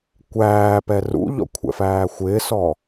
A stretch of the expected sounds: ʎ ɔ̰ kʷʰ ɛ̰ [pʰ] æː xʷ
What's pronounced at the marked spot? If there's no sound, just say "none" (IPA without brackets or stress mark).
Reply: f